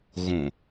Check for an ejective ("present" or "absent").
absent